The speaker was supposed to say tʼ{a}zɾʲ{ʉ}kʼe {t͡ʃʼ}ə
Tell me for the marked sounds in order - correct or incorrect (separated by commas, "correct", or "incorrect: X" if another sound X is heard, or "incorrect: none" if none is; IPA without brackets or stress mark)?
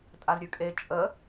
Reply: correct, correct, correct